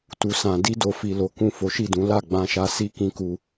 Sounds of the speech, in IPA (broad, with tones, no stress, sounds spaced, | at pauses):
t u˨ s ã˨ d i˧ d o˨ f i˨ l o˨˦ k ũ˦˨ f o˨˦ ʃ i˦˨ d ũ˨˦ l a˦˨ ɡ͡b ã˧ ʃ a˧ s i˦ k ĩ˧ k u˧